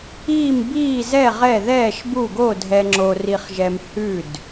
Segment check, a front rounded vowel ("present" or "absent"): absent